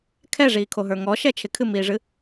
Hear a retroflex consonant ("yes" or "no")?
yes